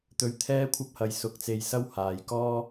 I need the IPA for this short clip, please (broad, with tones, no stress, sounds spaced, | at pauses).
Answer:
t̪ ɵ˧ ɥ t̪ʰ ɛː˥ kʷʰ ɐ˥ p̚ h ɐ˨˧ j s ʊ˨˥ k̚ t͡s e˧ j s ɐ˥ w h aː˨ j k ɔː˥